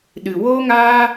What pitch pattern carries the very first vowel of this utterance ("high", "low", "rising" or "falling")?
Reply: low